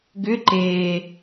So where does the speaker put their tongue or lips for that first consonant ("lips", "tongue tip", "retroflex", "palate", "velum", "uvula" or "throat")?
velum